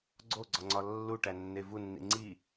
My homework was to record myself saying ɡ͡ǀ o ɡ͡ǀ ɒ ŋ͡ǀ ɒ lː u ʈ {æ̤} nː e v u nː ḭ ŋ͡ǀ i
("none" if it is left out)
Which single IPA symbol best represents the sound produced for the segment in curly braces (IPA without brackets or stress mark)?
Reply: æ